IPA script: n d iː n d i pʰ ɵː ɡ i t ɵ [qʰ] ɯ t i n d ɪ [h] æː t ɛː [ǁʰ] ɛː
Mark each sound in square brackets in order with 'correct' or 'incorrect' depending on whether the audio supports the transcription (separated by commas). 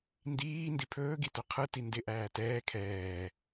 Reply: correct, incorrect, incorrect